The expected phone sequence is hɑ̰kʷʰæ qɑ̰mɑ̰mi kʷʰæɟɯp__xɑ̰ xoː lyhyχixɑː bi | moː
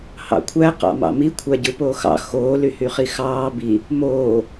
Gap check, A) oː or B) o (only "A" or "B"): A